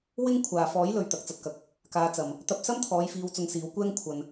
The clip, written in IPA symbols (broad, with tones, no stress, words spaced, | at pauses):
wɪ˥ŋ kʷʰaː˨fɔː˨˥jlɵ˨ɥ t̪ɐ˨˥k̚t͡sɐ˧t̚kɐ˧k̚ | kaː˨˧t͡sɐ˨m | t̪ɐ˧p̚sɐ˥mt̪ʰɔː˨˧j fiː˧wt͡sʊ˧ŋsiː˨˧wkʷɛː˥ŋ kʷʰɐ˧n